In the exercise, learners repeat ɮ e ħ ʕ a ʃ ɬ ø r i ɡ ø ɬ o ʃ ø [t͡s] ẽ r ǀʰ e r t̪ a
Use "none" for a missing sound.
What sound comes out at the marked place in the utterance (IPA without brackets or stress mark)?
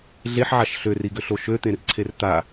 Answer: t̪